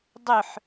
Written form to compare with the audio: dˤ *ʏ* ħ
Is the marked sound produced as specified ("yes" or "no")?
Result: yes